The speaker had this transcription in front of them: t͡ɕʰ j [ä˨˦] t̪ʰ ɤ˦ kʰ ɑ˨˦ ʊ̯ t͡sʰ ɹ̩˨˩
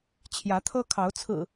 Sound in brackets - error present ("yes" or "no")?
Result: no